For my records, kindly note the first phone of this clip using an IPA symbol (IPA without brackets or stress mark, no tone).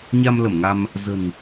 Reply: ɲ